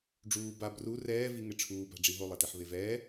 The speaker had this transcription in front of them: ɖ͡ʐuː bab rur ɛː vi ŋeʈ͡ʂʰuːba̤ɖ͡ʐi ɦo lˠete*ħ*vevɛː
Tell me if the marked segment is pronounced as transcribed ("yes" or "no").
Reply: yes